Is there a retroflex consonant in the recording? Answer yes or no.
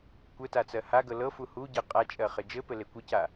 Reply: no